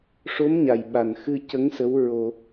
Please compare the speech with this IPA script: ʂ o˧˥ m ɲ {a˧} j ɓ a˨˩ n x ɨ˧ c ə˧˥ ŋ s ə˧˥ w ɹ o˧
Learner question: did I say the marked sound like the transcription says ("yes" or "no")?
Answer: no